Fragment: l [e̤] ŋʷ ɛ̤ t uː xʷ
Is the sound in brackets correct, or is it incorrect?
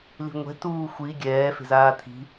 incorrect